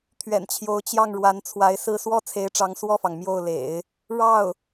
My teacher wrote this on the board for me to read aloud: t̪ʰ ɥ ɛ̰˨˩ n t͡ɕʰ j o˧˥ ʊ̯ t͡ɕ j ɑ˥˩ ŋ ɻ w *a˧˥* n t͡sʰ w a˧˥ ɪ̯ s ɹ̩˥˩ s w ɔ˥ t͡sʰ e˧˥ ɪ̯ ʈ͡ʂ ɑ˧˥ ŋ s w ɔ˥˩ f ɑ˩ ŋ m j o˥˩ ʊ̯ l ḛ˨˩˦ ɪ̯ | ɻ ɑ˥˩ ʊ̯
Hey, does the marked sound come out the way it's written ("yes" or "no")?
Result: yes